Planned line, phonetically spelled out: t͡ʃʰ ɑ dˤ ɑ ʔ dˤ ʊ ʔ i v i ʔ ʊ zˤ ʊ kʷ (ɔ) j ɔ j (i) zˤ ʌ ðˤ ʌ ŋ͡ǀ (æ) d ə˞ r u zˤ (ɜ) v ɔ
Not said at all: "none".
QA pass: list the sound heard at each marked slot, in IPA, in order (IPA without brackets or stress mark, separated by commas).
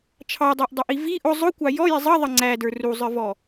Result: ɑ, i, æ, ə˞